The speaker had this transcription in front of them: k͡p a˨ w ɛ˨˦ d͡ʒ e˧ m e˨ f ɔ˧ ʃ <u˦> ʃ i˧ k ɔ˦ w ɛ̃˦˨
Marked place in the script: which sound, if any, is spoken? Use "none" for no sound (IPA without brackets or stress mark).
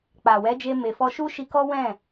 u˦